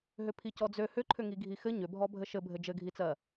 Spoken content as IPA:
ɦ ʏ pʰ i c ɔ d͡z ø h ʏ ǃʰ ʏ ŋ i ɡʱ i x ɘ ɲ ʏ bʱ ɔ bʱ ɘ ʃ ɘ bʱ ɘ d͡ʒ ɘ ɡʱ i t͡s ɜ

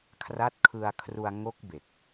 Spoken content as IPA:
kʰ r a˦˥ t̚ kʰ ɯ˧ a̯ kʰ r u˧ a̯ ŋ o˦˥ k̚ b e˨˩ k̚

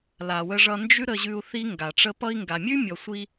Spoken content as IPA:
l a˨ w ə˧ ʐ ʌ˧ n d͡ʒ ʉ˦ ɾ ə˧ ʑ ʉ˧ u̯ θ i˦ ŋ ɡ a˨ ʈ͡ʂ ə˦ p ʌ˧ i̯ ŋ ɡ a˨ mʲ ʉ˦ mʲ ɔ˨ sʷ i˧

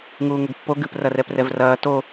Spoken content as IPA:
ŋ uː ŋ ɘ ɡ pː o ɡ ɨ p r ɐ r ɛ p r ɛ v r ɐː t o

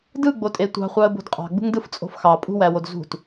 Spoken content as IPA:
d ɯ ɡ͡b o tʼ e tʷ ɑ̤ χʷ ɑ ə̯ b o̤ d qʼ ɑ̤ ɡ͡b ṳ ŋ d ɯ f t͡sʼ o̤ f x ɑ pʼ ṳ w æ w o d z ṳ t

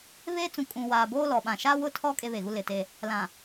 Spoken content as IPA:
β eː˦ t͡s ũ˨ kʼ ũ˨ w aː˨ b oː˦ l ɔ˨ ɓ ã˨ ʃ a˦ w ʊ˦˨ tʰ ɔ˦ kʼ e˦ β e˨ ɣ u˦ l ɪ˨ t e˦ | l ã˨

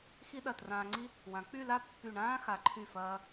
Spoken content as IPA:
x i˥ ɗ ɐ˧˩ t r ãː˧ ŋ͡ǀ i˥ | w ã˩˧ k͡p y˥˧ l a˥ pː y˧˩ ɳ ãː˥ x a˩˧ ǃʰ y˧˩ f ɐː˧

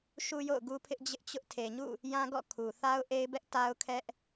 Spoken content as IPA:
ʃ u˦ j o̰˦˨ ʊ̯ ɡ u˦ pʰ ɪ˦ ʔ d͡ʑ ɪ˦ ʔ t͡ɕ ʊ˦ ʔ tʰ e˨ ɲ ṵ˦˨ | j ã˦ ɡ ɔ̰˦˨ kʰ u˨ θ a˦ ʊ̯ ʔ e˦ ɪ̯ b ɛ˦ ʔ t a˦ ʊ̯ kʰ ɛ˦ ʔ

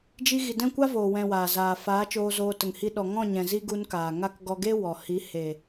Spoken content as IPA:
d͡ʒ i˧ ɣ i˨ d ɛ̃˦˨ kʷ a˦ v oː˨ w ɛ̃˨ w aː˨ z aː˨ f aː˨˦ t͡ʃ oː˧ z oː˧ t ə˨ ŋ h i˧ ɗ ɔ˨ ŋ ɔ̃˦˨ ɲ ɛ̃˨ z i˦ ɡ u˧ n k aː˨ ŋ a˦ k ɡ ɔ˧ ɡ e˦ w ɔ˨ h i˨˦ h e˨

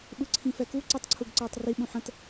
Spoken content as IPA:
ɓ ɯ ǀʰ ĩ f ɛ k u ǀ i tˤ ǀʰ u ɡ ǀ ɛː tˤ r i ɓ ũ ħ ə̃ t

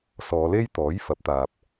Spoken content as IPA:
s ɔː˨˧ l e˥ j t̪ ɔː˨˥ j f ɐ˨˥ p̚ t̪ aː˧ p̚

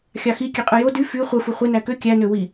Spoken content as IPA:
xʲ ɑ x i kʲ e qʼ ɯ j o d y f y χʷ ɯ f u χʷ e n æ k ø kʲ æ n ø w i

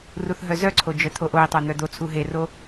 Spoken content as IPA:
r u θ ɦ œ z œ ǀʰ o d͡ʒ œ t̪ʰ o ʔ o i̯ tˤ o n̪ œ d̪ o t͡sʰ u ɦ e r o

